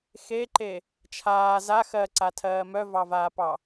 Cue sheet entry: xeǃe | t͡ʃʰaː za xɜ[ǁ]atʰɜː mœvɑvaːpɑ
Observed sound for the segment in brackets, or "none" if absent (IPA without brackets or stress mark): ǀ